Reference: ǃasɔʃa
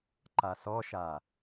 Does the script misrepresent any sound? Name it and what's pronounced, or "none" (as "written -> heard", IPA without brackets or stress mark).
none